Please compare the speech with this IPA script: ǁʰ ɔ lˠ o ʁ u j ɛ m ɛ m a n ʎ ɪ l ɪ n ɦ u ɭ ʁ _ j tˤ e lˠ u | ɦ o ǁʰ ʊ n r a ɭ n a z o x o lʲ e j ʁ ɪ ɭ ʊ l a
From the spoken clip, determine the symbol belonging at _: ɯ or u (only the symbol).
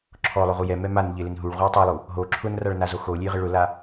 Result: u